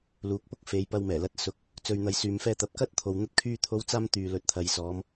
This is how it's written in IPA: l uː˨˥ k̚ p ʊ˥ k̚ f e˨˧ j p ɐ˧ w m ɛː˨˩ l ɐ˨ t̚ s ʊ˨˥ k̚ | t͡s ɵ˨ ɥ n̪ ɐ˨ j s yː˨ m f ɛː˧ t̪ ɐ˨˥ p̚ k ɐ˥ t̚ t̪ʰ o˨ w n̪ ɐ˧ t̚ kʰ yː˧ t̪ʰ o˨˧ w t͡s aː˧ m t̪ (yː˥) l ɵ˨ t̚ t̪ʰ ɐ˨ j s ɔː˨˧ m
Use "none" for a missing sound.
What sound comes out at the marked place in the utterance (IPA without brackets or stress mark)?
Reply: yː˨